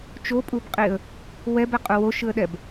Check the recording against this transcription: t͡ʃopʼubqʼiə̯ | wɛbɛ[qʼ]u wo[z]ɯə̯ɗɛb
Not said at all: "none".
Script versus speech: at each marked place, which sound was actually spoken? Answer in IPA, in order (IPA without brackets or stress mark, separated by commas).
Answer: qʼ, ʃ